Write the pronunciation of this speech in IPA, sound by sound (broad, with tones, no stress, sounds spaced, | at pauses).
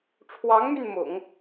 ʈ͡ʂʰ w ɑ˧˥ ŋ m y˧ n m ʊ̰˨˩˦ ŋ